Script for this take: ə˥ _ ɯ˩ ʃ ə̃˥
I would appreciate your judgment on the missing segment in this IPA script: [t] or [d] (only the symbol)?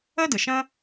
d